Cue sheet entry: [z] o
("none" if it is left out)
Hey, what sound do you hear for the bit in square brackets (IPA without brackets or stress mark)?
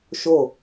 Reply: ʃ